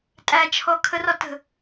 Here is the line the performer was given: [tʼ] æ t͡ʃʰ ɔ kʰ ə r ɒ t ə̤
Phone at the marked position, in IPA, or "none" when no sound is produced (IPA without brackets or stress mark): tʼ